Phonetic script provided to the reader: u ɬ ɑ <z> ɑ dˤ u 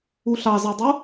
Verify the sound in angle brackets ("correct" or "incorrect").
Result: correct